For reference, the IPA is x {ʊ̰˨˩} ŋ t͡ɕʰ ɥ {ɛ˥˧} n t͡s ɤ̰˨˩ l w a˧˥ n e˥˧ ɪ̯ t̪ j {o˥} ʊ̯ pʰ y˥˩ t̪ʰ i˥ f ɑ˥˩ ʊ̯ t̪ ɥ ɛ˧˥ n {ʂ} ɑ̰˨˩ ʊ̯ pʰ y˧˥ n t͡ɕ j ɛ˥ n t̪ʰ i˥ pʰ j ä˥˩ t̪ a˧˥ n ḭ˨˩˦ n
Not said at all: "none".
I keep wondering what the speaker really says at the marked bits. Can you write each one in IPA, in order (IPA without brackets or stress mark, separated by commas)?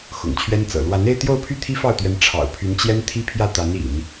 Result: ʊ̰˨˩, ɛ˥, o˥˧, ʈ͡ʂʰ